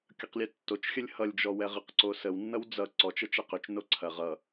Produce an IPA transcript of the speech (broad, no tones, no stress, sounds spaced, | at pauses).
kʲ ʌ q lʲ ɛ tː o t͡ʃ xʲ ə lʲ h ʌ lʲ d͡ʒ ɔ w ɛ ʁ ə q ǀ o s ə w nː ʌ w d͡z ʌ ǀ ɔ t͡ʃ ə t͡ʃ ɛ q ʏ t͡ʃ n o ǀʰ ɐ ʁ ʌ